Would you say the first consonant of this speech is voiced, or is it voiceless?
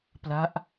voiceless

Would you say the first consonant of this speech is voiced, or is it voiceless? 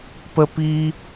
voiceless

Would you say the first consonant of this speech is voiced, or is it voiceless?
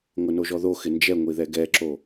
voiced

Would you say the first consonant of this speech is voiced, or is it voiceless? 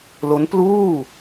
voiced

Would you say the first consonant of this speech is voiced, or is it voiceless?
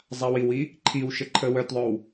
voiced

